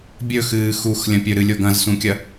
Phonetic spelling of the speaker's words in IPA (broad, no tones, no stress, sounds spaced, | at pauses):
bʲ ɵ x ɨː x u x lʲ ɐ̃ pʲ ɵ ɾ ɨ lʲ o ɡ ɐ̃ z s ũ kʲ ɐ